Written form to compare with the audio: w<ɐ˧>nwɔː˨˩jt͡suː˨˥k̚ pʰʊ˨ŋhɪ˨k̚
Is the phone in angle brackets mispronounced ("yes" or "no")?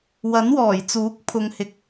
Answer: yes